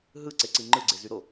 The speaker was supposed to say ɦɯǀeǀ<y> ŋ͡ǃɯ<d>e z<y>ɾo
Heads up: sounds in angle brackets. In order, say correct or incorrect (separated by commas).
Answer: incorrect, incorrect, correct